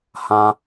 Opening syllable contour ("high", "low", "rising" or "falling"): high